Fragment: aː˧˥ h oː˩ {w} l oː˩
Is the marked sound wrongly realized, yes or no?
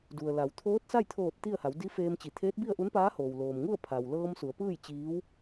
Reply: no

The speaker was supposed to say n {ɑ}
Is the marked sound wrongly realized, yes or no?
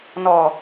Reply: yes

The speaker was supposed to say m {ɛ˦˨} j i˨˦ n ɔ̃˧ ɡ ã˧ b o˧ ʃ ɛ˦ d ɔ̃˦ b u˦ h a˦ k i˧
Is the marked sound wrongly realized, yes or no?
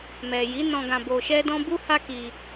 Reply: yes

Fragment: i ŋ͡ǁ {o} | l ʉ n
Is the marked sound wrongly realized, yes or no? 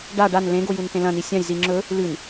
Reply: yes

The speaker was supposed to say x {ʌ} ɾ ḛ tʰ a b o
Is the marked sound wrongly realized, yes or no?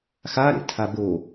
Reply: yes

